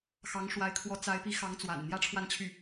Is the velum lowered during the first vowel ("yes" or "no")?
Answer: no